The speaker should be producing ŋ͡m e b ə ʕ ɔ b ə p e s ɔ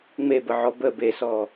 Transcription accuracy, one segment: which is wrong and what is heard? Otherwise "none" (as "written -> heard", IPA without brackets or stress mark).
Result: p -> b